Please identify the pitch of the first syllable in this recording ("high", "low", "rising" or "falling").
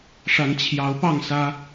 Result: rising